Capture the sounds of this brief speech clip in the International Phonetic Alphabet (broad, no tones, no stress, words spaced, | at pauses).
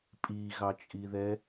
pʼiɣɑt͡ʃʼiðɛ